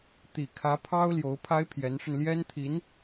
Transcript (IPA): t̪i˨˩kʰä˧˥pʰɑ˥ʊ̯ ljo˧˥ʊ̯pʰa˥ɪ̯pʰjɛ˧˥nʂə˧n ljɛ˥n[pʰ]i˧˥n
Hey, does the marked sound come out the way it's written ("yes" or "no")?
no